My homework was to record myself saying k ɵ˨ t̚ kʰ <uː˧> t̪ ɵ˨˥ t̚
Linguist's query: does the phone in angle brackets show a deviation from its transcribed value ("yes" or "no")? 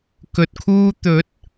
no